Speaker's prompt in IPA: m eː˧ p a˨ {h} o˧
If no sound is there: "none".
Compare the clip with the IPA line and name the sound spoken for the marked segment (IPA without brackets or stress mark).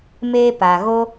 ɣ